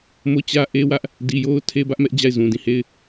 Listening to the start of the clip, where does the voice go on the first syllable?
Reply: falling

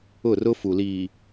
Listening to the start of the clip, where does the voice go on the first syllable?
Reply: falling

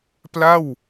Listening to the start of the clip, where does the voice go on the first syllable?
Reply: falling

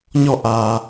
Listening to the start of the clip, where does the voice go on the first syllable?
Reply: falling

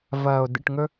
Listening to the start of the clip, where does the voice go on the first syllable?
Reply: low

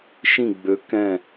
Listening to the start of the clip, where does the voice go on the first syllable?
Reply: falling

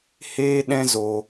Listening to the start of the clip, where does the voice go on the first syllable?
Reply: high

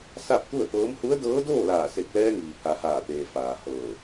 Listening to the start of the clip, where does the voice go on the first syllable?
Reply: falling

